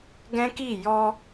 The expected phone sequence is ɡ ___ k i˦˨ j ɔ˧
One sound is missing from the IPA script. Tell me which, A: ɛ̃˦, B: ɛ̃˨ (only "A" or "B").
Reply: A